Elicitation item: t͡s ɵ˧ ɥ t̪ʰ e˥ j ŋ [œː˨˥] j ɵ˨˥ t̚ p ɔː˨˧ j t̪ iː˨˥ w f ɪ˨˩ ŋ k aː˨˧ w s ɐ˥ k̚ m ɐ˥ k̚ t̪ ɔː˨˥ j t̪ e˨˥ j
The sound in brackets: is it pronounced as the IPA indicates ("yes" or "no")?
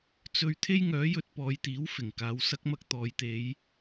yes